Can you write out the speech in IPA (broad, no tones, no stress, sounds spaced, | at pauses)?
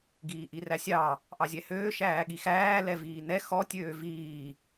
ɡ iː ʔ i r æ sʲ ɑ | ʔ ɑ zʲ ɛ h øː ʃ æː ɠ i x æː l ɛ v iː n ɛ x ɔ tʲ øː v iː